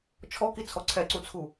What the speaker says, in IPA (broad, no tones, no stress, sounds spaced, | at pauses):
t͡ʃʰ ɔ k i t͡sʰ ɔ ǀʰ ɛ ǀ u t͡sʰ u